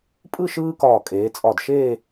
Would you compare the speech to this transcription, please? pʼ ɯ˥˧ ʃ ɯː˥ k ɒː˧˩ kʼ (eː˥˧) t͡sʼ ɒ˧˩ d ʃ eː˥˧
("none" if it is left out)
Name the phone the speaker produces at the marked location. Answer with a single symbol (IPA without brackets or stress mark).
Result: eː˩˧